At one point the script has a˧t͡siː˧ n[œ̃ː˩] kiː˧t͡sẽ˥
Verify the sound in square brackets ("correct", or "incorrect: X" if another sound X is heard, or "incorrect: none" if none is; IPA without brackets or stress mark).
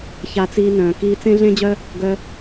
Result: correct